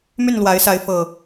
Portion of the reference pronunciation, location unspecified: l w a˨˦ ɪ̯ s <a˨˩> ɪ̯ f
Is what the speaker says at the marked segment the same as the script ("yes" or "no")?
no